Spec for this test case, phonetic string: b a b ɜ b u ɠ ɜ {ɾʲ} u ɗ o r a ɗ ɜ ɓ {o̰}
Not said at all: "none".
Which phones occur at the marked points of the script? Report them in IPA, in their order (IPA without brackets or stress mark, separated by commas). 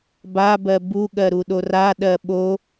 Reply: ɾ, o